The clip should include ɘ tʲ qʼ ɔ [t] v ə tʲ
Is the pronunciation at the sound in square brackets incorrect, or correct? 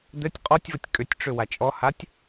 incorrect